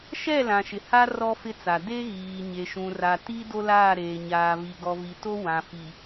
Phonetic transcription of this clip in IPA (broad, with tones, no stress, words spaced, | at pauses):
ʃɛ˦˨lã˨ ʃɪ˨ ha˦ rɔ˦ fɪ˦t͡sa˨ de˦ɣiː˨ ɲe˨ʃũ˨ra˨ ti˦ do˦laː˦˨ɾeː˨ ɲaː˨vi˨ɡɔ˨vi˨ to˦ wã˨fi˨